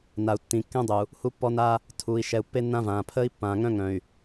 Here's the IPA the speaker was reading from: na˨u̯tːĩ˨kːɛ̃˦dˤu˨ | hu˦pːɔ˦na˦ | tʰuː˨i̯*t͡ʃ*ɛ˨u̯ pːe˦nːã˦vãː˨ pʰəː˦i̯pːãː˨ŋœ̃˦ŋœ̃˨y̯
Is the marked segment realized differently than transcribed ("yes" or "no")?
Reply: yes